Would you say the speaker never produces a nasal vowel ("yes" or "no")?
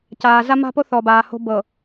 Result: yes